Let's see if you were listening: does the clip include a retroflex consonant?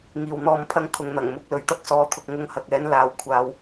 no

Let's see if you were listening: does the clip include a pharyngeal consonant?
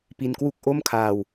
no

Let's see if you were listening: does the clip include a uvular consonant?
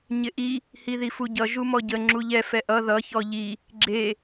no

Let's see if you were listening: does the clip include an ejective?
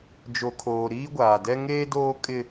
yes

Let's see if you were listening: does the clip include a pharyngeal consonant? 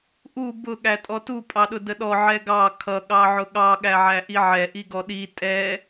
yes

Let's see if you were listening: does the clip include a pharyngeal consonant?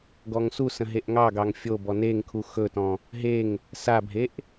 no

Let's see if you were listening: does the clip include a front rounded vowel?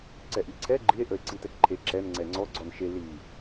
no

